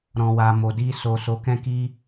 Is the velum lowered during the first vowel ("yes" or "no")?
yes